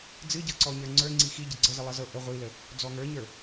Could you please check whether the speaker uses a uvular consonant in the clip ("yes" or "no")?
yes